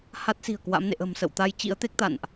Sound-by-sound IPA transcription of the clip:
h a˦˥ t̚ s i̤˨˩ ə̯ k w a̰˧˥ m n ḛ˧˨ ʔ ə̤˨˩ m s ə̰˧˨ w t̪ a˧ j t͡ɕ ḭ˧˥ ə̯ t̪ e˦˥ k̚ t̪ a̰˧˨ n ʔ

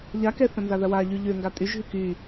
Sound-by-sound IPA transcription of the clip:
ʎ a k ɛ θ ɐ̃ n z a ð ɐ w a ʎ y ʎ ø ŋ ɡ a tʼ y ʒ ɦ y k y

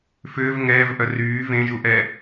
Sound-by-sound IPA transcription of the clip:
f ʏː v ŋ ɛː v ʔ œ r yː v ẽ ʒ u ʔ ɛ

